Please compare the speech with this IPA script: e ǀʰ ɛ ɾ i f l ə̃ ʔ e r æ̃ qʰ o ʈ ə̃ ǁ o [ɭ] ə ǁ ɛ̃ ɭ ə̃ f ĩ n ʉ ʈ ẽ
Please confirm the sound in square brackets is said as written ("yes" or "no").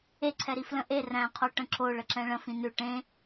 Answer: yes